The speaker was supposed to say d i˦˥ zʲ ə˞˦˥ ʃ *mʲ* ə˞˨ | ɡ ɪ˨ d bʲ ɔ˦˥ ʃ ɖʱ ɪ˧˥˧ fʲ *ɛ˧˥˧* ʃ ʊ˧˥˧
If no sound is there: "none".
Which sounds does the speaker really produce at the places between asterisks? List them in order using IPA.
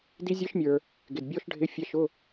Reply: mʲ, ɛ˧˥˧

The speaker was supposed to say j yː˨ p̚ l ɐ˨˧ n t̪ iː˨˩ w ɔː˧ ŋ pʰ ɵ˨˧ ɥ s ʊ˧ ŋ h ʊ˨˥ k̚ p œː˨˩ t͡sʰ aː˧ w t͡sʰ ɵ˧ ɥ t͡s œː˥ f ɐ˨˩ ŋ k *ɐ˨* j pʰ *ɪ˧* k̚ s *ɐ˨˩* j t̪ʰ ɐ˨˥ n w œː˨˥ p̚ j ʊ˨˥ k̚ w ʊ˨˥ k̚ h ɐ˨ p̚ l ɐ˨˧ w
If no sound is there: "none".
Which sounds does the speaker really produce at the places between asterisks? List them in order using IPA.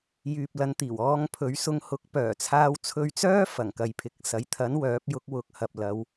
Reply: ɐ˨, ɪ˨˥, ɐ˨˥

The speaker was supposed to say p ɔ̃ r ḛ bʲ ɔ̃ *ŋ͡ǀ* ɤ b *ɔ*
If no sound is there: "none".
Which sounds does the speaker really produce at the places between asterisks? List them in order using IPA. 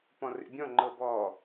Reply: ŋ͡ǃ, ɔ

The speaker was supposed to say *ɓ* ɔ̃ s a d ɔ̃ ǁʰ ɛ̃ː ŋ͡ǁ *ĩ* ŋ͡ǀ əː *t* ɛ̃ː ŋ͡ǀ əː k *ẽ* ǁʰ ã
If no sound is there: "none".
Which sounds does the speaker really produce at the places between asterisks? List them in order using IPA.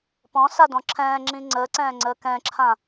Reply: p, ĩ, ǀ, ɛ̃

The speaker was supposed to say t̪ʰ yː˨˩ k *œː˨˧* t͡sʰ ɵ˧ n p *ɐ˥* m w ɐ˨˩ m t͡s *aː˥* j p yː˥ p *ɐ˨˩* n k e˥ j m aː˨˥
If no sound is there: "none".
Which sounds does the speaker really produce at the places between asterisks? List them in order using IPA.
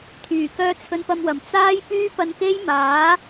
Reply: œː˧, ɐ˧, aː˥, ɐ˧

